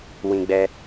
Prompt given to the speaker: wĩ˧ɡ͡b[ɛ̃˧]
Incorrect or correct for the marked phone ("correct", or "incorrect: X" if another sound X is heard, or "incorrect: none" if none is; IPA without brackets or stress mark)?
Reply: incorrect: ɛ˧